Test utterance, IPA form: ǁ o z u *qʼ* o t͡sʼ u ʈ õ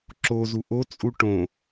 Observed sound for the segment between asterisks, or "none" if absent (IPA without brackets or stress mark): ʔ